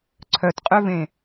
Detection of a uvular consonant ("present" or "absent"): present